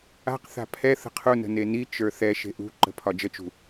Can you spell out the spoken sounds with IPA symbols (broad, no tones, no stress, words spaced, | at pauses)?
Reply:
a̤qθa̤ pʰɛ θə̤qʰu nə̤neni t͡ʃə˞θɛ ʃe̤ʔṳǃə̤ pʰɒd͡ʒət͡ʃṳ